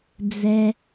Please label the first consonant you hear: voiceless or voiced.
voiced